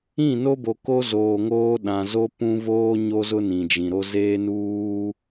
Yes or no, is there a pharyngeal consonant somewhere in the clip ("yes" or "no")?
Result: no